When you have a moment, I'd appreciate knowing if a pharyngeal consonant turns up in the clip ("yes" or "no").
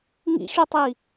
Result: no